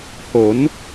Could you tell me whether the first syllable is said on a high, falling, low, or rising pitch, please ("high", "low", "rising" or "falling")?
rising